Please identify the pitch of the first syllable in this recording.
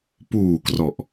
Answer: low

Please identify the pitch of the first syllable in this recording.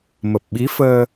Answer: low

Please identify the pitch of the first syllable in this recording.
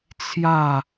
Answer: falling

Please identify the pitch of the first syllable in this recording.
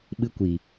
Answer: high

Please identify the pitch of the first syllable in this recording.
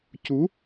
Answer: rising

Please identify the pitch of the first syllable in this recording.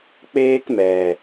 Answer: high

